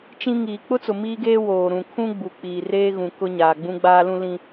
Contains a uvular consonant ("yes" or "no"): no